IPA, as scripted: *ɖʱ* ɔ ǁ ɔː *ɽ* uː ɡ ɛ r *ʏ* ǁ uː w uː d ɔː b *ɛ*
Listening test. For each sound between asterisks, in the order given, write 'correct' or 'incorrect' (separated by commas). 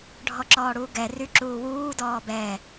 correct, correct, incorrect, correct